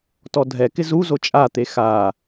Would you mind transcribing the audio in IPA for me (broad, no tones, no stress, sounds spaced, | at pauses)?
t ɔ dʱ ɛ k ɪ z u z o t͡ʃʼ a t̪ e x a